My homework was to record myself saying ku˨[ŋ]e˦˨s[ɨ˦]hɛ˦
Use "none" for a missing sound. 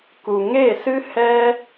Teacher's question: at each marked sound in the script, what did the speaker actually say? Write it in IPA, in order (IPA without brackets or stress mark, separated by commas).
ŋ, ɨ˦